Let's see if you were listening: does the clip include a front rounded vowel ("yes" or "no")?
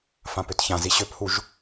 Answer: yes